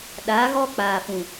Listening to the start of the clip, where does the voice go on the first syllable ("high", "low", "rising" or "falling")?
rising